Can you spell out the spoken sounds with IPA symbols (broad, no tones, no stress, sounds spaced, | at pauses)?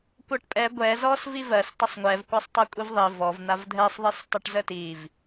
kʷ ɜ ʈ pʼ ɛ ɡʷ ɛ z ɔ s v i v ɜ s tˤ ə sˤ ŋʷ ɛ v kʷ a sˤ tˤ a kʷʼ i v ðˤ i v ɔ v n̪ a v dʱ ɛ sˤ ðˤ i s tˤ ɛ ʈ z ə t i v